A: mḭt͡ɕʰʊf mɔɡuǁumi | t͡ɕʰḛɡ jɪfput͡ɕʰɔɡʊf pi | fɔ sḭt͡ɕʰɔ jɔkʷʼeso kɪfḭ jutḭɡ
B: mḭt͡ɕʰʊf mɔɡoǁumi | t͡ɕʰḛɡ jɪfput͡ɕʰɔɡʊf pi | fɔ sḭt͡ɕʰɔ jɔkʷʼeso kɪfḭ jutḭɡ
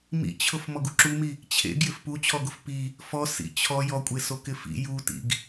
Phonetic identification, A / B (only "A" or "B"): A